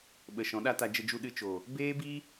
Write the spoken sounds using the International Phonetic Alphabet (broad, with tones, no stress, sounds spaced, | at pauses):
ɓ ə˨ ʃ ɔ̃˨˦ ɗ a˦ t a˧ d͡ʒ ə˧ d͡ʒ u˧ ɗ ɨ˧ t͡ʃ o˨ | b eː˦ b i˦